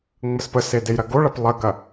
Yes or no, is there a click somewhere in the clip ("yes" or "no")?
no